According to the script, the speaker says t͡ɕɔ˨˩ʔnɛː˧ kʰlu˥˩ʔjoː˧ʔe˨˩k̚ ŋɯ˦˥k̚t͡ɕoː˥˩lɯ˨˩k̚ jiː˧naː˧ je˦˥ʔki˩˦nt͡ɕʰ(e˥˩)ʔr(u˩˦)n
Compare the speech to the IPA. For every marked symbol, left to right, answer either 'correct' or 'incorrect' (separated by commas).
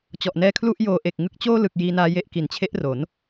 incorrect, incorrect